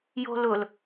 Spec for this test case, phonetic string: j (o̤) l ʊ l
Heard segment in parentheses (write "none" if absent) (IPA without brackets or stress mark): o̤